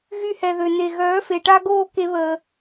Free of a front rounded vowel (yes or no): no